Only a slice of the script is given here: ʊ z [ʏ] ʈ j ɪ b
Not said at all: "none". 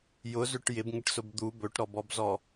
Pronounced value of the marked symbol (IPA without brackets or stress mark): ʏ